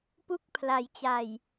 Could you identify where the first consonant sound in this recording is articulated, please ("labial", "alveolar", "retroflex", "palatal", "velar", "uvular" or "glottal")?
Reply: labial